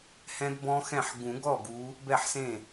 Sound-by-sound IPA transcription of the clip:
h ɛ̃˦˥ d b ɔ̃˦˥ x ɛ̃˥˩ ħ ɡ ũ˨˩˦ ɡ ɔ˥˩ ɡ u˨˦ | b ɛ˥˩ ħ s ẽ˥˩

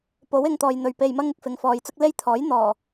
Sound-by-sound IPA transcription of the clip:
p o˨˥ w ɪ˧ ŋ t̪ ɔː˨ j n̪ ɵ˨ ɥ p e˧ j m ɐ˥ ŋ ɪ˧ k̚ f ɪ˨˧ ŋ f ɔː˨˧ j t͡s ʊ˥ k̚ l e˥ j t̪ʰ ɔː˨˥ j n̪ ɔː˨˩

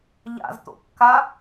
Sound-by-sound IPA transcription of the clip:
ʎ a̰ z t̪ o̰ kː a

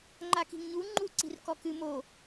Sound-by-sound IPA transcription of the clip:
ŋ͡ǃ a k i̤ ŋ ɲ u ŋ͡ǃ u ǀ i̤ r k ɔ k ɨ m o

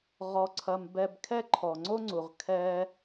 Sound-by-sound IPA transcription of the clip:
ʁ ɔ˧ ǀʰ ɐ˧ m b ɛ˧ b kʰ ɛ˦ ǃʰ ɔ˨ ŋ͡ǀ o˦ ŋ͡ǀ u˨ ʁ kʰ ɛ˦

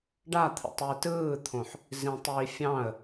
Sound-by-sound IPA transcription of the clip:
ɖ a t̪ʰ ə̰ tˤ i t ɯː t̪ʰ õ ħ | z ĩ tˤ j i fʲ ɑ̃ ə̯

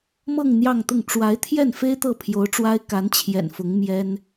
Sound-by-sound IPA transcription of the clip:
m ɤ˥˧ ŋ n̪ j ɑ˥˧ ŋ t̪ ʊ˥˩ ŋ ʈ͡ʂ w a˧˥ ɪ̯ t̪ʰ j ɛ˥˩ n f e˥ ɪ̯ t̪ ɤ˥˩ pʰ j o˧˥ ʊ̯ ʈ͡ʂ w a˥ ɪ̯ k a˧˥ n t͡ɕʰ j ɛ̰˨˩ n f ʊ˧˥ ŋ m j ɛ˥ n

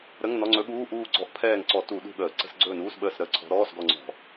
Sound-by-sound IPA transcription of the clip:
ɾ ə˧˥˧ ŋ n ɔ˧˥˧ ŋ͡ǀ ɵ˧˥ ɠ uː˧˥˧ ʔ uː˦˨ ɡ͡ǀ ɔ˧˥ ʔ pʰ ɛː˦˨ ŋ ǀ ɔ˧˩˧ t u˧˩˧ ɗ ṳ˦˨ ɠ əː˧˩˧ ǀ ə̤˧˥˧ s ɡ͡ǀ ɵː˦˨ n uː˧˥˧ s ɓ əː˦˨ s ɾ ə˧˥˧ ǀʰ ɔ̤˧˥ ɾ ɔː˧˥˧ s ɡ ɔ˦˨ ŋ͡ǀ ɔ̤˧˩˧

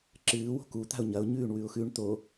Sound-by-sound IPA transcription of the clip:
ǁ ɨː w o̤ k u t̪ a̤ ʊ̯ ɲ ɐ ʊ̯ ɲ ʉː ɳ w ʉ ʊ̯ x ʉ ɳ t̪ o

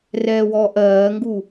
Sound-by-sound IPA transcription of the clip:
r ɛː w ɔː ʔ ɜː ŋ ɡ u

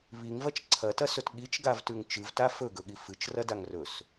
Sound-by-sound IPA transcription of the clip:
β i ŋ v ɐ t͡ʃ ǀʰ ɐ t ɐ s ɵ t ɠ i t͡ʃ ɡ a v t ʉ ŋ t͡ʃ ɨ v t a f ɵ ɡ ɵ ɠ i f ɨ t͡ʃ r ɐ d a ŋ r ɵ s

